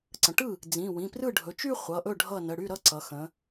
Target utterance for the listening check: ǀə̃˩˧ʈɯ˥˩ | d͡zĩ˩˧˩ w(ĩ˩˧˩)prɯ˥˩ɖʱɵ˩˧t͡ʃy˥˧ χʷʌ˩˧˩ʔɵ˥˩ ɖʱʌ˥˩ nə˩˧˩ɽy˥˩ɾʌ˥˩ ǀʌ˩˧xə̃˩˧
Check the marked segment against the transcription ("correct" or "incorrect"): correct